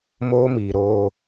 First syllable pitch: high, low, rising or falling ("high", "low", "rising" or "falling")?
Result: high